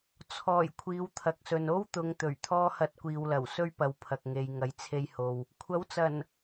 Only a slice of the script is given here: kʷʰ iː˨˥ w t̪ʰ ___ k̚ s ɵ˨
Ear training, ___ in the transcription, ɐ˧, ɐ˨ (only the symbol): ɐ˨